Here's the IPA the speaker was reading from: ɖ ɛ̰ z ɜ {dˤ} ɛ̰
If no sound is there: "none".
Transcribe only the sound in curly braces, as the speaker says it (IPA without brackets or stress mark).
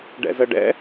ɖ